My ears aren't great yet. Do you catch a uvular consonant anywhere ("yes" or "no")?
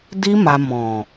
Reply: no